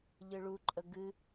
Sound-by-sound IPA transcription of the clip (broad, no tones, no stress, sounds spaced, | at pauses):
ʎ ɨ ɭ u ǃʼ ə ɡ ɨ